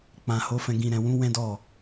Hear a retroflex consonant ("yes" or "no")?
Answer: no